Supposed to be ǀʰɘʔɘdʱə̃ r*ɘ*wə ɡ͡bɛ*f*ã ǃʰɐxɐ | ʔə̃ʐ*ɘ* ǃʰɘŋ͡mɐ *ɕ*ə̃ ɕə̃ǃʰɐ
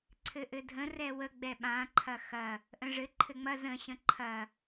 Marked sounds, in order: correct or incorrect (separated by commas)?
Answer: incorrect, incorrect, correct, incorrect